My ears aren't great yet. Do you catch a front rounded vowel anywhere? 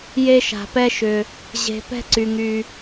yes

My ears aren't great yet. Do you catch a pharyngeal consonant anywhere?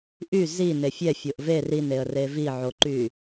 yes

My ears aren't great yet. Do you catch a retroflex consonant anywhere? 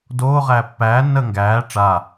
yes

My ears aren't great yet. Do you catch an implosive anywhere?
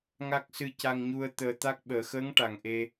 yes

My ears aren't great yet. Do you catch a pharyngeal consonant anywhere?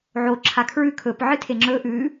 yes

